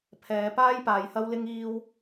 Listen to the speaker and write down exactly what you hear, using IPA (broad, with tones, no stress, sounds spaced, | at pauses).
pʰ ɛː˨˧ p aː˥ j p aː˨˧ j h ɐ˥ w l ɪ˥ ŋ iː˥ w